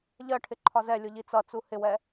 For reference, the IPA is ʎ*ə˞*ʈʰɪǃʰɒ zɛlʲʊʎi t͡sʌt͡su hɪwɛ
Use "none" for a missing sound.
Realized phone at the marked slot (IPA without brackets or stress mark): ɜ